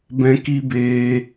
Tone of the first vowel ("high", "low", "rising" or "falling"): high